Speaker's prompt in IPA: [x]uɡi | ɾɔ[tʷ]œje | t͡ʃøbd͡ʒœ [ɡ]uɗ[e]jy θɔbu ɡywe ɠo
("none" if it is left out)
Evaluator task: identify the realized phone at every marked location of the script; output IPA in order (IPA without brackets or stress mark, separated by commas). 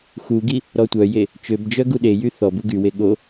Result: x, tʷ, ɡ, e